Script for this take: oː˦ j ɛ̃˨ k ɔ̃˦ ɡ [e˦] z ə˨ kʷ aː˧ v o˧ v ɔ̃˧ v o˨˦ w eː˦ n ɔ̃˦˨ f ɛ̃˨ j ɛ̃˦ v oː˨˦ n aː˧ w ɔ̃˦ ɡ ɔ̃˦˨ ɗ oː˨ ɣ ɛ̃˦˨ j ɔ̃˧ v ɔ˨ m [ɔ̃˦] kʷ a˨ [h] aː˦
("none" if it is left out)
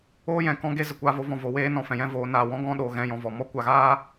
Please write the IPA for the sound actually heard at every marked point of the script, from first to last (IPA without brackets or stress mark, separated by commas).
e˦, ɔ˦, ɣ